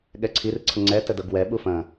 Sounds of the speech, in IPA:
ɠ ɛ ǀʰ i r ǀʰ ə ŋ͡ǀ ɛ t ə d ɤ ɡ w ɛ ɓ u f ɐ̃

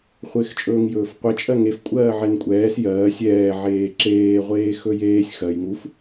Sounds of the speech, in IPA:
χʷ ɪː x t͡ʃʼ ɵː ŋ j ɵː f qʷ e t͡ʃʼ ɜ ŋ e f kʷʼ ɜː ʕ ɛ n kʷʼ ɛː s j ɜː sʲ ɛː ʕ eː ǁ eː ʁʷ eː x ɵ j eː sʲ x ɜ j ŋ u f

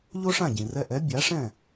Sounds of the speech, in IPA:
ʎ o˥ ʂ ã˥˩ ɟ ĩ˩ r ɛ˧ ʔ ɛ˩˥ bʲ a˩˥ ʂ ɛ̃˥˩

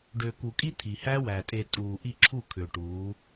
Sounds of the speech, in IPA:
ɖ ø˨ k u˨ kʼ i˦ t̪ʰ i˨ h æ˦ w æ˨ tʼ e˨ tʼ uː˨ ʔ i˦˨ ǁʰ u˦˨ kʰ ø˨ ʈ uː˨˦

